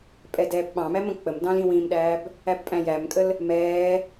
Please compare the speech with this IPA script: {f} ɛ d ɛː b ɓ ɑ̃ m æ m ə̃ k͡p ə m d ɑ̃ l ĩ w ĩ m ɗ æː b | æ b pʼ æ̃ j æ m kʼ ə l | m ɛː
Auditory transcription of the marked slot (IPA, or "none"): pʼ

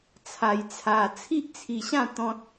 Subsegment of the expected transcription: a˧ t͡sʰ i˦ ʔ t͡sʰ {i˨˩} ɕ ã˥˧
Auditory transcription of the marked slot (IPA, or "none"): i˧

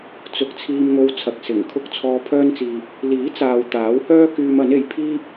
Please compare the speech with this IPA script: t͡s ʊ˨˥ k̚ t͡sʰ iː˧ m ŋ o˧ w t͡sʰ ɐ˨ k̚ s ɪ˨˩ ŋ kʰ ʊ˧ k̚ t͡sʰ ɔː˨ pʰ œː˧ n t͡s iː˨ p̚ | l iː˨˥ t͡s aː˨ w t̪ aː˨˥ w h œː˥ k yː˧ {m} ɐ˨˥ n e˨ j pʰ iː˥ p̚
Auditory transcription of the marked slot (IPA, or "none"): m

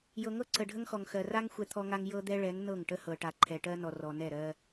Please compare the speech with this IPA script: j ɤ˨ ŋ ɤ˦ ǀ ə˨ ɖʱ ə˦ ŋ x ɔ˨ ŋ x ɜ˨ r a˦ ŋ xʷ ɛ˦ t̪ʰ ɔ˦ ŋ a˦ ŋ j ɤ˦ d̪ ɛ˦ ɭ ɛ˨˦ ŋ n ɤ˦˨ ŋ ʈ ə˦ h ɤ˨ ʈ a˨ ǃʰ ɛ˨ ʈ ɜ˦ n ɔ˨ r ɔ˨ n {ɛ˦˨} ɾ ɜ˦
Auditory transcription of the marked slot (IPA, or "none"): ɛ˦˨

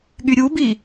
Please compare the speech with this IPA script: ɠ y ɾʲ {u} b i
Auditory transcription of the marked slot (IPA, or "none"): u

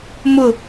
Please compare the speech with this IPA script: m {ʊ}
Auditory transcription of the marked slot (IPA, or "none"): ʊ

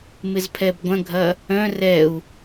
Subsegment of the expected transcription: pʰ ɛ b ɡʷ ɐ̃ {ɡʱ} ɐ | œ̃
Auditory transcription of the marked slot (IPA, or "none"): ɡʱ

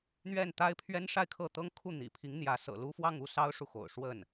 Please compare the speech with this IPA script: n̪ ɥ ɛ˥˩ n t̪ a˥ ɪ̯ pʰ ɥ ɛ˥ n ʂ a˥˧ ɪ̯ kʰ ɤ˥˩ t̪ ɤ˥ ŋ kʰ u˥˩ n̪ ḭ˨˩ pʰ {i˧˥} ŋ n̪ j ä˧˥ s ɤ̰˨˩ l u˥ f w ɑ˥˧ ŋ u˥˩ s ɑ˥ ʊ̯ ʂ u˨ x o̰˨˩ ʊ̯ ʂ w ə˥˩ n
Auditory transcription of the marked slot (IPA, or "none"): i˧˥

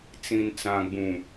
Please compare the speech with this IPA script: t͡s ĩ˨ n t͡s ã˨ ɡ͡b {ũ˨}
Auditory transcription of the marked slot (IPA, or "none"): ũ˨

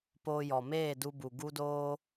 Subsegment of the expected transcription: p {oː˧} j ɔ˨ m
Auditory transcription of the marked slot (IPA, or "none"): oː˧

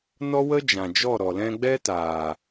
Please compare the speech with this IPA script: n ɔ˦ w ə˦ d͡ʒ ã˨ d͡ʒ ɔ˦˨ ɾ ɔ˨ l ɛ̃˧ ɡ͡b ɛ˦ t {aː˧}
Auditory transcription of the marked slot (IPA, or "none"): aː˨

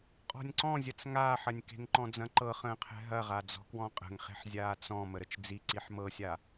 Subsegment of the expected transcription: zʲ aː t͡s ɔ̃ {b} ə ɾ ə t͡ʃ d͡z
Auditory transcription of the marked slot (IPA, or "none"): m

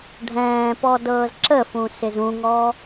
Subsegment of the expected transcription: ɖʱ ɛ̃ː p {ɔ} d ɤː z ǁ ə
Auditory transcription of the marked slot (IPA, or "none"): ɔ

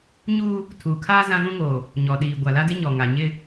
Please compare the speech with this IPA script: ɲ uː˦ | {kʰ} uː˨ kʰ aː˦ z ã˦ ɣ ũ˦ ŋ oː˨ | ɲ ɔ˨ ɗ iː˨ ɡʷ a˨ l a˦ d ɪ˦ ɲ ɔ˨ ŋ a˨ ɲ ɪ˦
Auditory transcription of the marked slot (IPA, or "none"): tʰ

